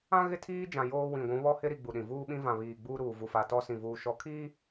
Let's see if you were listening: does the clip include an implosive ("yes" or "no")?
yes